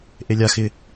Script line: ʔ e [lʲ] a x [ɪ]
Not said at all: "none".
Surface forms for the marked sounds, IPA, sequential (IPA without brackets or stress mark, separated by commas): lʲ, ɪ